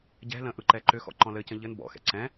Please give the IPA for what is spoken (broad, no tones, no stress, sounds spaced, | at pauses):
ɟ ɛ̤ l ə̃ ʔ ɯ ǃ ɛ ǃ ʏ x ɔ̰ ǃ ɔ̃ l ɘ c ə̃ ʎ ɘ n b ɔ̰ x ɛ̰ ǀ ɛ̃